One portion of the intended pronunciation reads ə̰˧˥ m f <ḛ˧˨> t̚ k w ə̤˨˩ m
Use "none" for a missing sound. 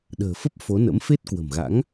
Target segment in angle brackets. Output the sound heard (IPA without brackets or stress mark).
e˦˥